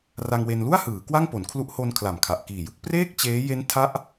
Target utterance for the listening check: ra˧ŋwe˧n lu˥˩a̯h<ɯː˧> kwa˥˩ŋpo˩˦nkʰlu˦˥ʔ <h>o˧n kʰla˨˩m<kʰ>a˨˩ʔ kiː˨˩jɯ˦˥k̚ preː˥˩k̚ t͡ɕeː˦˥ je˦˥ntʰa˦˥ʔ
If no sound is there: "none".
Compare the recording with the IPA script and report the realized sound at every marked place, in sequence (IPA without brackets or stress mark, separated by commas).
ɯː˩˦, h, kʰ